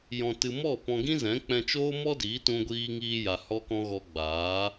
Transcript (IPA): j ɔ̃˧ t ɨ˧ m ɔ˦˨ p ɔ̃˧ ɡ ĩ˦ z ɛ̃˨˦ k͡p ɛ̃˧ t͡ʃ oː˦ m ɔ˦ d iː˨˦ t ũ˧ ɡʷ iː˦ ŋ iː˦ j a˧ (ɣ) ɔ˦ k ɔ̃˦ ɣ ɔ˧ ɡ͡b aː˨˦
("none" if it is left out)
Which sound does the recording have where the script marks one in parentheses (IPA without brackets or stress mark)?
h